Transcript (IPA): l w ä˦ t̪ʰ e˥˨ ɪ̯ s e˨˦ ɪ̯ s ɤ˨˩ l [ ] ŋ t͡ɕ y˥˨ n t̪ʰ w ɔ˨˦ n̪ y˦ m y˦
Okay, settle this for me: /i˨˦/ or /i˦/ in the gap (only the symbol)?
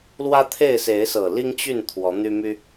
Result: i˦